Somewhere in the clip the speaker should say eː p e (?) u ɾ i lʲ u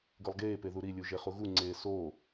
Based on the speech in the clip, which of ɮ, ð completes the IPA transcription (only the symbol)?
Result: ð